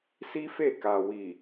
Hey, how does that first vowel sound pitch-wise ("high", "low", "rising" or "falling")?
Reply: high